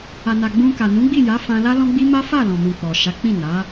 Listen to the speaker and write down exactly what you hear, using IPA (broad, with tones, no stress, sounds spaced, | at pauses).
a˨ n a˨ ɡ͡b ũ˧ k a˨ n ũ˨˦ ɡ͡b i˦˨ j a˨˦ f ã˧ l a˦ l ɔ̃˦ ɡ͡b i˦ m a˦ f a˦˨ l ɔ̃˨ m ũ˨ k͡p ɔ˨ ʃ a˨˦ k͡p ĩ˦˨ n a˨˦